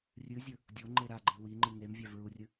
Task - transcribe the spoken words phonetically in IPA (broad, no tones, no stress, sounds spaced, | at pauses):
rʲ ɨ zʲ ɵ | dʲ o ŋ͡ǃ e ɾ a ɡ͡ǃ ɨ w i ŋ͡ǃ ɨ ŋ e m vʲ a v ɹ u rʲ ɨ